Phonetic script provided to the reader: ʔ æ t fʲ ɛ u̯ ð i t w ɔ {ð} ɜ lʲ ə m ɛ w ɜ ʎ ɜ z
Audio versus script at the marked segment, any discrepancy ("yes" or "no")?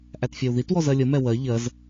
yes